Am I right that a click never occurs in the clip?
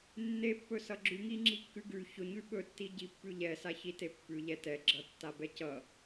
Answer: no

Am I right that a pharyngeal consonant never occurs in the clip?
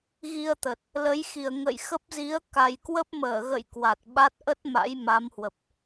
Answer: yes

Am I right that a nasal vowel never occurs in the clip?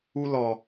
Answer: yes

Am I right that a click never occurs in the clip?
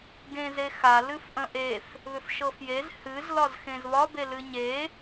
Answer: yes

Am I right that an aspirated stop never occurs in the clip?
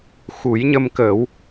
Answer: yes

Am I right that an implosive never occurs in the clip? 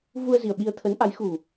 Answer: no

